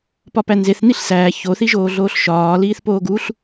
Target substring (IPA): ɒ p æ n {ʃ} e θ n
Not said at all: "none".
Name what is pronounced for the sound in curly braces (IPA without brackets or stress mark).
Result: z